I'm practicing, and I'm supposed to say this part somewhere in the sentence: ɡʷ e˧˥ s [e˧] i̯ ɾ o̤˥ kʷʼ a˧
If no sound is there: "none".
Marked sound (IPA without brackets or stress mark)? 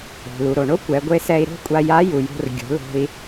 ɛ˧